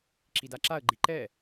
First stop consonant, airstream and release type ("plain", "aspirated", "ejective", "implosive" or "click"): click